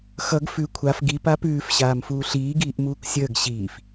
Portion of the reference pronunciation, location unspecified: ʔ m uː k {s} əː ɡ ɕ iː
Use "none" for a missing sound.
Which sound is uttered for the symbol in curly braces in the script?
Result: sʲ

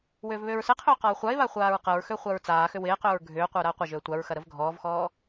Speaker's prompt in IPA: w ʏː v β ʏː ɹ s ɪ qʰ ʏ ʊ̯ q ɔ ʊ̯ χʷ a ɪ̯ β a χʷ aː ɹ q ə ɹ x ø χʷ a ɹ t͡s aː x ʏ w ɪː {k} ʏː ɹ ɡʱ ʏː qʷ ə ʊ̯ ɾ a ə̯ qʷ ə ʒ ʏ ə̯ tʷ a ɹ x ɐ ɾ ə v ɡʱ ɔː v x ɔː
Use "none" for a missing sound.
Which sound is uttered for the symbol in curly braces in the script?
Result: q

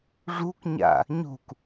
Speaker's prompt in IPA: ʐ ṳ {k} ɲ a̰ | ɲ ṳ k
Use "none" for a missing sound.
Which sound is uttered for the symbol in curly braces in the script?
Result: k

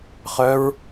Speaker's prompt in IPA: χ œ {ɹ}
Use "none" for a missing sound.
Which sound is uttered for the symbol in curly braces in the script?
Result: ɹ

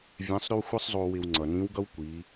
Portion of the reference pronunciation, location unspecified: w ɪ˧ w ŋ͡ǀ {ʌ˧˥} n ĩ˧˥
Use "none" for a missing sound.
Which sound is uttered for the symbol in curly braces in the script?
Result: ʌ˩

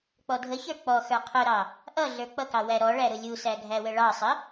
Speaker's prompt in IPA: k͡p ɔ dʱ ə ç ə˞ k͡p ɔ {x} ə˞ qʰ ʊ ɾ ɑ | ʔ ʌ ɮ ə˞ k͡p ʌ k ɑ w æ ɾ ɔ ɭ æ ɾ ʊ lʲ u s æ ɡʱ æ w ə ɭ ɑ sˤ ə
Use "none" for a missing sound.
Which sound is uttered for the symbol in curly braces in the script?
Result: x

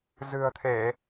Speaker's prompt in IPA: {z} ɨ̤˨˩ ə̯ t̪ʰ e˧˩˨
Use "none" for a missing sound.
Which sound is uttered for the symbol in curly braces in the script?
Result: z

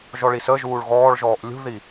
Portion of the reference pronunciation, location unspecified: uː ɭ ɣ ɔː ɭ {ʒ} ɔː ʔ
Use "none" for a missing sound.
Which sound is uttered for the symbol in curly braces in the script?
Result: ʒ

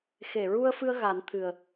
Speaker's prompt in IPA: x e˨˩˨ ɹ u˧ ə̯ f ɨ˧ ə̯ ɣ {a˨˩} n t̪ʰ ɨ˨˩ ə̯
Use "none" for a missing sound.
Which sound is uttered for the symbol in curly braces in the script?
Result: a˨˩˦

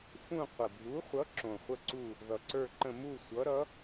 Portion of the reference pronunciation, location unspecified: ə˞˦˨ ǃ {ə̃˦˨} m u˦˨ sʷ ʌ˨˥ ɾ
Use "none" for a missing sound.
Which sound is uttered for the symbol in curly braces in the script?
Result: ə̃˦˨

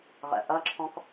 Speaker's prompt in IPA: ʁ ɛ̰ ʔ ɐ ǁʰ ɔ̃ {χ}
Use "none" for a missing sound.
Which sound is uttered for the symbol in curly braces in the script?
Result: k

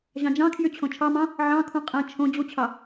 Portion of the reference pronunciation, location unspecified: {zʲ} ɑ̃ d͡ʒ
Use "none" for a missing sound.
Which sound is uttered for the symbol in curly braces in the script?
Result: ʑ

